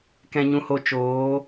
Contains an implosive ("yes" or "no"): no